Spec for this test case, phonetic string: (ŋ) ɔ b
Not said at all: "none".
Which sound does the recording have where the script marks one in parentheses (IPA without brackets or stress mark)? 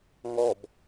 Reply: ŋ